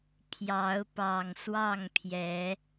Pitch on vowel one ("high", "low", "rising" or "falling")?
rising